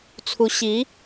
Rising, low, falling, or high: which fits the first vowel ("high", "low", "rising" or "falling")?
rising